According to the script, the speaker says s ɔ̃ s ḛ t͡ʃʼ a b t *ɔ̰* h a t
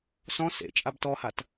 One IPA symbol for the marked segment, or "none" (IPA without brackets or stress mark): ɔ